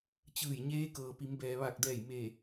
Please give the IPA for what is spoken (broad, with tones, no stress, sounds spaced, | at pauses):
t͡ɕ ɯː˧˩ j ɲ eː˧˥ k ɤː˩ p i˩˧ m b ɛː˩ ʋ a˧˩ k̚ d ɛː˧˩ j m e˧˩